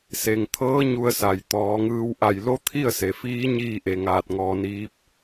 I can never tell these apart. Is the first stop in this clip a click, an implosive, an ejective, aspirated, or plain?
aspirated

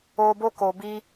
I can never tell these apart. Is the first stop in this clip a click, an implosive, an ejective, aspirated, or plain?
plain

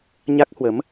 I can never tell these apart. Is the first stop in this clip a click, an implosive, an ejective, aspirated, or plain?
plain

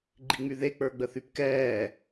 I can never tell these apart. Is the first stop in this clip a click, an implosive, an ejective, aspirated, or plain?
click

